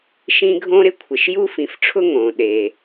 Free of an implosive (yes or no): no